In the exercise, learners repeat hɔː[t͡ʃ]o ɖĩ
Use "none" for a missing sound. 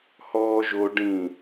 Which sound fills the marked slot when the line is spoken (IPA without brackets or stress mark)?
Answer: ʒ